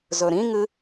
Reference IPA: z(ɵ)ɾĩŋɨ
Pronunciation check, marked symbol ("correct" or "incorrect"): correct